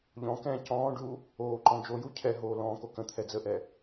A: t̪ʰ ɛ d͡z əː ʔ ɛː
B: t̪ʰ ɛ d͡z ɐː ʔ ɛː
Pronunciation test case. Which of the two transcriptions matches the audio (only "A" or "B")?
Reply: A